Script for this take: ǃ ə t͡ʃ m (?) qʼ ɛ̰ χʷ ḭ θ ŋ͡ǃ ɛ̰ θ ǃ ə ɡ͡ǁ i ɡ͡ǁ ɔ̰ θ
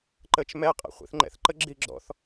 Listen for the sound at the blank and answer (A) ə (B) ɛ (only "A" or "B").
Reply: B